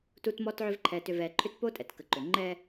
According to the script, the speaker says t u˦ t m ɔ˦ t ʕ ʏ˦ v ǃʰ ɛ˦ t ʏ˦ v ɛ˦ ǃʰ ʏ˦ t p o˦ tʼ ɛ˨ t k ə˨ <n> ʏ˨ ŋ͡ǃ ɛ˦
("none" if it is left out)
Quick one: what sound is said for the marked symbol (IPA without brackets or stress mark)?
ǃ